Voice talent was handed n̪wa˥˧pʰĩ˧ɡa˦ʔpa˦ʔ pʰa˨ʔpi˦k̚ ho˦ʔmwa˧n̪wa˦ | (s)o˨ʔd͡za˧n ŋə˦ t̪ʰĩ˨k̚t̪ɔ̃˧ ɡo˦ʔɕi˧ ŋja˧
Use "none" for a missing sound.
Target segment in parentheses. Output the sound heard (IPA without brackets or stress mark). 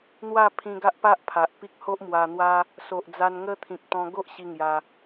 s